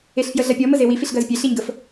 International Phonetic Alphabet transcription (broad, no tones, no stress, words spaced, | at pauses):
eɬfjəɮɐpʲɔ məzewi fiɬɡɜzpʲe ɬiɲɡəf